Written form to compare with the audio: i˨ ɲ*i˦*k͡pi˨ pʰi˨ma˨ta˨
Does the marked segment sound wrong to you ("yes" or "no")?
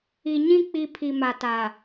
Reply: yes